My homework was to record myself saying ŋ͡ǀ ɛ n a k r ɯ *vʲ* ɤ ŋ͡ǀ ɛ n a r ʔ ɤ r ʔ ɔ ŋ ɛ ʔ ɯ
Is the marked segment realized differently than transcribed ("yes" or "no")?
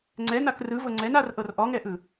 yes